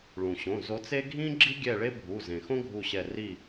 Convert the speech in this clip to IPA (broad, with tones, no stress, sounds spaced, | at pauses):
ɭ ũ˩ ɕ õ˩˧˩ z o˨˦ t͡s e˥ ɡʱ ĩ˥ ɡ͡ǁ i˥ ɡʲ ɛ˦˨ ɭ e˥ bʱ u˩˧˩ z ẽ˩ x õ˥ ɡʱ u˦˨ ɕ ɛ˦˨ r i˦˨